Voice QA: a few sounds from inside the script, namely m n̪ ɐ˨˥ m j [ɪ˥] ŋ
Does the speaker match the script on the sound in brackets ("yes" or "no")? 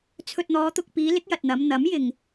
no